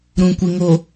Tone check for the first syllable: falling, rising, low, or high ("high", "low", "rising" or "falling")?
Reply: low